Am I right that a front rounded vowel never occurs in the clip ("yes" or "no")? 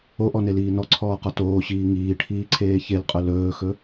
yes